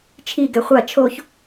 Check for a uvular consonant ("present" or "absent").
present